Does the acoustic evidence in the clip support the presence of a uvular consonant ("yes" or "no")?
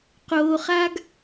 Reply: yes